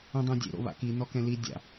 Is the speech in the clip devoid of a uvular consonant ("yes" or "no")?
yes